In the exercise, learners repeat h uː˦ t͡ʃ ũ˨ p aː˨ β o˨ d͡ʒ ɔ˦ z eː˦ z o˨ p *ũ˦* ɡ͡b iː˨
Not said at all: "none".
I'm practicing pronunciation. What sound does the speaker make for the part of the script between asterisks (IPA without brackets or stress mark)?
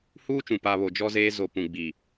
ũ˨